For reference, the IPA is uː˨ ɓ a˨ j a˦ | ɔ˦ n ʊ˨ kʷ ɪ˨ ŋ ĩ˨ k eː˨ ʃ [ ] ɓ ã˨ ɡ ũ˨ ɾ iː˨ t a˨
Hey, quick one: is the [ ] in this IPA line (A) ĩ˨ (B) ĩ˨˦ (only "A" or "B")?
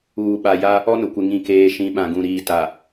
B